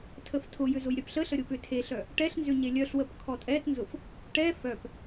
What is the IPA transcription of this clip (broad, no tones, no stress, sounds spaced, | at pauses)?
tʰ ə f tʰ ʊ j ʏ z ʊ j ɾʲ œ p ɬ ə ɬ ə ɾʲ ʊ p ʏ tʰ e ɬ œ | ʈ ɛ ɬ n z ʏ ɲ e lʲ œ ɬ w ə p kʰ ɔ tʼ ɛ t n z ʊ f | ʈ ɛ f œ p